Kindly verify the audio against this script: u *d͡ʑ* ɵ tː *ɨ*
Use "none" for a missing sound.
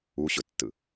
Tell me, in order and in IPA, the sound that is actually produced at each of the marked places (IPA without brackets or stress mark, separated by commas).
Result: ɕ, ɨ